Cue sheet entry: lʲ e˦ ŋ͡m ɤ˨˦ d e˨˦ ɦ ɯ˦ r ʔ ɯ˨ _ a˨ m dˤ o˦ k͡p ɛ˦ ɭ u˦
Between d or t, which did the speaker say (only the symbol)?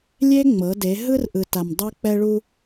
t